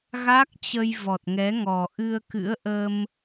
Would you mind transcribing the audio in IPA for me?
ɣ a˦˥ k̚ t͡ɕ ə˧ j v ɔ˨˩ t̚ ŋ ɛ˨˦ ŋ ɔ˨˩ ʔ ɨ˧ ə̯ k ɨ̰˧˥ ə̯ ʔ ə˧ m

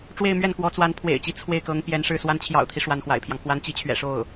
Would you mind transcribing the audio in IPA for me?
ʈ͡ʂ w e˥˧ ɪ̯ m ɥ ɛ˥˩ n k w ɔ˧˥ t͡s w a˧˥ n pʰ w ḛ˨˩ ɪ̯ t͡ɕ i˧˥ t͡sʰ w e˥˩ ɪ̯ k ɤ˧˥ ŋ p j ɛ˧˥ n ʂ ɻ̩˥˩ s w a˧˥ n t͡ɕʰ j ɑ̰˨˩ ʊ̯ t̪ʰ i˦ ʂ w a˧˥ n x w a̰˨˩ ɪ̯ pʰ j ɑ˦ ŋ k w a˧˥ n t͡ɕ i˧˥ t͡ɕʰ ɥ ɛ̰˨˩ ʂ o˥˩ ʊ̯

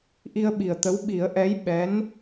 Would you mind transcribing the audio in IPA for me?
ʔ i˧ ə̯ ɓ i˨˩ ə̯ t̪ ə˧˥ w ɓ i˨˩˦ ə̯ ʔ ɛ˧˥ j ɓ ɛ˧˥ n

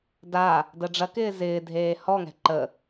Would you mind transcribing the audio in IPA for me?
d a | d ə ɖ͡ʐ ɐ k ɪː z ɪː dʱ eː h ɔ ŋ ɛ̤ ǃ ə

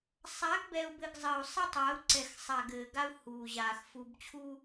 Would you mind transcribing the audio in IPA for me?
sˤ a˨˦ ɡ b ɛ˨ u̯ b ɘ˨ ɡ zˤ ɘ˨ u̯ sˤ ɛ˦ tˤ aː˨˦ u̯ ǀ ɛ˨ x sˤ a˨ ɡ ɘː˨ ɡ a˦ u̯ h uː˨ ʑ aː˨ x f u˨ b t͡ɕʰ u˦

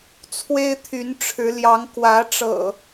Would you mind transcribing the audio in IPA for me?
t͡sʰ w e˦ ɪ̯ t̪ʰ y˨˦ n ʈ͡ʂʰ ɻ̩˨˦ l j ɑ˨˦ ŋ k w ä˨˦ ʈ͡ʂ ɤ̰˨˩

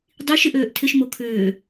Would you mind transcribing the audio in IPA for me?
dˤ i ʃ ɪ ʔ øː ʔ tʰ ɪ ʃ m o kʰ ʏː

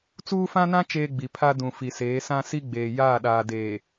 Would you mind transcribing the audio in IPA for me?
t͡s uː˦ f ã˦ n ã˦ t͡ʃ eː˦ ɡ͡b i˨ pʰ a˦ d ũ˨ f i˨ s eː˨˦ s ã˦ s i˦ ɡ͡b eː˨ j aː˦˨ ɗ aː˨ d eː˨

